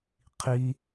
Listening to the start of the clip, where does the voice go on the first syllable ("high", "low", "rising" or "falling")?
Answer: high